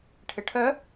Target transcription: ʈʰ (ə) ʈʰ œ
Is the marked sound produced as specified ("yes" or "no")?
no